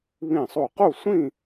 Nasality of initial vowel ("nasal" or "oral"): nasal